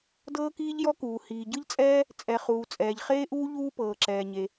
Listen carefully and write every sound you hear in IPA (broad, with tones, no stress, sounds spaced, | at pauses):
d ɤː˥ k iː˥ ʎ j ɔ˥ k uː˩ h iː˩ ɟ ɯ˥ ʎ t͡sʼ ɛː˥ | t͡sʼ ɛ˩ χ uː˩ t͡sʼ ɛː˩ ʎ χ eː˥ ʔ uː˥ ʎ uː˥ p ɤː˩ ǁ ɛː˩ ɲ e˩